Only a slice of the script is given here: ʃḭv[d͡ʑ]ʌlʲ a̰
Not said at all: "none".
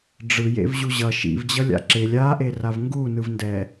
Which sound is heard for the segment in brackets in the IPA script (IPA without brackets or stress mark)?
d͡ʑ